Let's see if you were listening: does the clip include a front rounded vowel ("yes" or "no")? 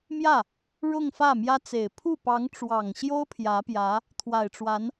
no